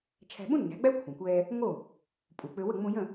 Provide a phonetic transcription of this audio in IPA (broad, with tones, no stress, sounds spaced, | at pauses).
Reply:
t͡ʃʰ æ̤˧ ɓ ũ˥ nː æ̤˩˥ ɡ͡b æ˥ kʷʰ ɛ̃˩ kʷ ɛː˧ | ŋ o˥˩ | pʼ u˩ k͡p ø˧ w ə˥˩ ŋ͡m ũ˧ j ə̃˥˩